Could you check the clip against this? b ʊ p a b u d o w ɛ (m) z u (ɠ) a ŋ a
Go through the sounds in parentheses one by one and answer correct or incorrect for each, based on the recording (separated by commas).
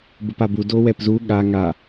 incorrect, correct